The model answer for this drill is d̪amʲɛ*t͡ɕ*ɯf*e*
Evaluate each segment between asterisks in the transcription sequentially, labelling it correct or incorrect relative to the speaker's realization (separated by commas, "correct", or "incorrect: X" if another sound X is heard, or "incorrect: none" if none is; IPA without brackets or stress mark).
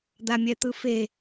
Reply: incorrect: t̪, correct